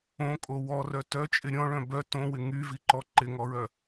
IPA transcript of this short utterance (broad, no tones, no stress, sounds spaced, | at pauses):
õ kʼ o w ɔ r œ t œ t͡ʃʼ ɪ ɾʲ ɔ̃ ɭ œ̃ b œ t õ w ɪ ŋ y v i ǃ ɔ ǃ ɪ ŋ ɔ ɹ œ